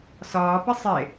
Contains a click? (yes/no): no